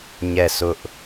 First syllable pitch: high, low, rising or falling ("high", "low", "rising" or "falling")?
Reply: falling